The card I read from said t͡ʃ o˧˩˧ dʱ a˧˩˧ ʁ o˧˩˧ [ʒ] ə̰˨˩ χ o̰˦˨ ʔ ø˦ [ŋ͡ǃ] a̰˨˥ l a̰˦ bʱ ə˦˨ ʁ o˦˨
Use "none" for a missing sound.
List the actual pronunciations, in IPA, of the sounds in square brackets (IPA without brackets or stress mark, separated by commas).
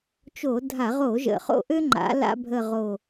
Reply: ʒ, ŋ͡ǃ